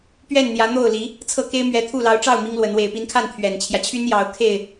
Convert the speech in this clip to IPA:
pɥɛ˥˩nn̪jä˧˥n̪o˥˩ʊ̯li˧˥ | t͡sʰɤ˥˩ke˥ɪ̯mɥɛ˧˥t̪ʰu˥˩ lɑ˧˥ʊ̯ʈ͡ʂɑ˥˩ʊ̯ mi˥ŋlwə˧˥n we˨˩ɪ̯pi˧˥nkʰa˥˩n t̪ʰɥɛ˨˩nt͡ɕʰjä˦t͡ɕʰy˥njɑ˧˥ʊ̯ kʰe˥˩ɪ̯

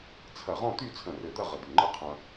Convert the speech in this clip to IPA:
t͡sʰɐ˧˩ʁɔ̃˥˧t̪y˥˧ t͡sʰə̃˧˩rɘ˧˩d̪ɐ˥˧ ʁə˧˩d̪y˧˩ ŋ͡ǃə˥qʰɐ̃˧

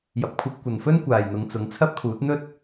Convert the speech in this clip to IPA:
jɐ˨p̚kʷʰɐ˧p̚kʷɐ˨nfɵ˥n kʷaː˨jn̪ʊ˨˧ŋt͡sʊ˨˥ŋ t͡sʰɐ˥p̚kʰuː˨˥t̚ n̪ɵ˥t̚

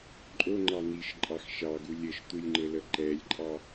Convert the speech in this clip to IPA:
ǃʼoŋ͡ǃɑ n̪iʃǃʼɑx ʃɑɡu lʲəʃt̪ulʲŋ͡ǃɘlə ǃɛlʲǃʼɑ

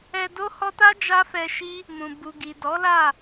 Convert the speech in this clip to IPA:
ɛ˧do˦hɔ˦ ta˦ d͡ʒa˦fɛ˧ʃi˦ | mũ˨ bu˨ɡi˨dɔ˨˦la˦˨

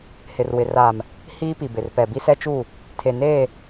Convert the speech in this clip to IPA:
hɪ˨rwɪ˨ raː˨m | hiː˦pi˨bɪ˨r pɛ˨bi˦sɛ˦t͡ʃuː˦˨ | tʰe˨neː˦˨

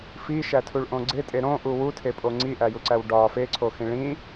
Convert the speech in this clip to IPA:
fiʃætʰuɭʔõ ɡ͡ǀetʼe ɾõʔu wutʰepʼo ŋ͡ǀiʔæjuǀæw ɖɒ feǀʰoxĩ ɭĩ

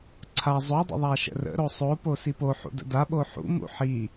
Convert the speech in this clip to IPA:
ǀʰa zˤodˤə̰ ðˤaʃə̰rə̰ ɾosˤopo sipoħṵdə̰ da ɓoħṵ mṵħi

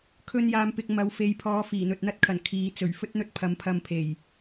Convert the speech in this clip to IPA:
kʰɵ˧njaː˨mpɪ˨k̚ mɐ˨wfe˨jpʰɔː˨˧ fiː˨˩n̪ɵ˨t̚n̪ɐ˥t̚kʰɐ˨˩n kʰiː˨ t͡sɵ˨˩ɥfɵ˥t̚n̪ɵ˥t̚ pʰɐ˨˥mpʰɐ˧mpʰe˨˩j

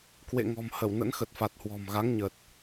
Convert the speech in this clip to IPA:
kwḛ˧˨ŋɔ̤˨˩m hə˧˩w nə̰˧˥nxə˨˩t̚fa˨˩t̚ hwɔ̤˨˩mɣa˨˦ŋɲə˨˩t̚

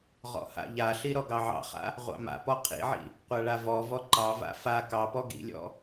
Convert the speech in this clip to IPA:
ʁɔ̰ha̰ʎaɬi ɾɔɡɑʕɑ̰χa̰ | ʁʷɑ̰ma̰pɔ qʰḭʕḭ | qʷaɭavɔvɔ ǃɑva̰ fa kɑpɔ ɡḭlʲɔ̰

